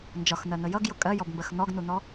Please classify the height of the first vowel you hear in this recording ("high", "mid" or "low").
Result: low